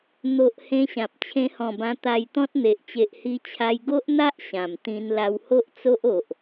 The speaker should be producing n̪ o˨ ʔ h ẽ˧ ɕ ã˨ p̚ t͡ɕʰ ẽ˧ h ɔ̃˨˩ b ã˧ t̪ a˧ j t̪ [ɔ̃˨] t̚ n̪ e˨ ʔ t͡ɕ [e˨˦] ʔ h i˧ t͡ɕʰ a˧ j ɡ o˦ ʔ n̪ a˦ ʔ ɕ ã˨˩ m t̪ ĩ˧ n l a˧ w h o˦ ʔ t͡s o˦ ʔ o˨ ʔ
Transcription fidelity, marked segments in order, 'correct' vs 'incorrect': incorrect: ɔ̃˦, incorrect: e˨

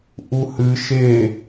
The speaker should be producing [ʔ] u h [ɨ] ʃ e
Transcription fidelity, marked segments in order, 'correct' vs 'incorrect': correct, correct

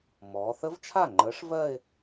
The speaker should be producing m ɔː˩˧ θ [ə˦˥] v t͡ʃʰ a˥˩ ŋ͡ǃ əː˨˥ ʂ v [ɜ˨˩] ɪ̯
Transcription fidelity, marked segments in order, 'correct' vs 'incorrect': correct, incorrect: ɜ˥˧

